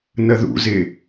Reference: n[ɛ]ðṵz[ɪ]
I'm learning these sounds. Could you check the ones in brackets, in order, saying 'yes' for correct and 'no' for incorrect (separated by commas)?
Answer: no, yes